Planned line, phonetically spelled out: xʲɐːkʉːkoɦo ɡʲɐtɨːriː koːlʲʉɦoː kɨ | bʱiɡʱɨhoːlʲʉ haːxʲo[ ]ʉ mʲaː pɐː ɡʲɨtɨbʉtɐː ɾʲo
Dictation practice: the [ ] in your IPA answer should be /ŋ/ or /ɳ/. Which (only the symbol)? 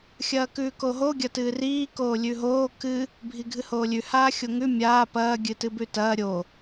ŋ